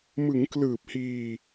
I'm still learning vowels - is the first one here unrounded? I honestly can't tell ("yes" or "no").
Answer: yes